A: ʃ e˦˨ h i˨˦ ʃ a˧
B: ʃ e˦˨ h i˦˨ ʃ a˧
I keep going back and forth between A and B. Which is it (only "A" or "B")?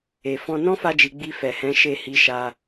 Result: A